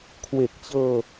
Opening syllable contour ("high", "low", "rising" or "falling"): low